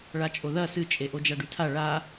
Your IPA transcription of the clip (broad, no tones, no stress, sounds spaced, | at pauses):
ɭ a t͡ʃʼ o ð ɐ s ɨ t͡ʃʼ e ʔ o d͡ʒ a ɖ ʉ tʰ a ɭ a